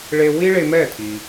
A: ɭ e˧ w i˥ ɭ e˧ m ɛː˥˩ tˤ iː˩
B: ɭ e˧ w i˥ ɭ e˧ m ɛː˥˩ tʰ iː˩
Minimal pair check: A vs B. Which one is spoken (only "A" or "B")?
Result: B